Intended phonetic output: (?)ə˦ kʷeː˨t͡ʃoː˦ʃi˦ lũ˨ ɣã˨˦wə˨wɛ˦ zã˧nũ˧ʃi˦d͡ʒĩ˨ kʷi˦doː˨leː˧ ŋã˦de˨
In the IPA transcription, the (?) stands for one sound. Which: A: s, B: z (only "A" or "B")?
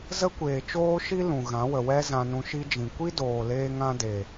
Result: B